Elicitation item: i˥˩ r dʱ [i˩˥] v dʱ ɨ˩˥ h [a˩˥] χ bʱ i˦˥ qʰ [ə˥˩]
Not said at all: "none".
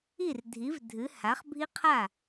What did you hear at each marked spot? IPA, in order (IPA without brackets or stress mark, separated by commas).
i˩˥, a˩˥, a˥˩